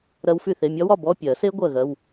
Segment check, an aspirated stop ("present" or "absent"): absent